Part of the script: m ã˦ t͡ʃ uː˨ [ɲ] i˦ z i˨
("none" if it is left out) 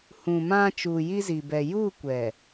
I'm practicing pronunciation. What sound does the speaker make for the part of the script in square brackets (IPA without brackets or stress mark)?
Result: j